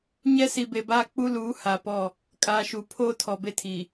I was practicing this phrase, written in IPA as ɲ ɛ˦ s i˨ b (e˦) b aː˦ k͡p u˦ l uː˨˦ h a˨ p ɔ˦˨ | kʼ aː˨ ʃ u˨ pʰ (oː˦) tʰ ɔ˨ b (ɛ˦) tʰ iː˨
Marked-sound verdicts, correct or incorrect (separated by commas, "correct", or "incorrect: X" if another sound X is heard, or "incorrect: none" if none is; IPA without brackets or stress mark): incorrect: e˨, correct, incorrect: e˦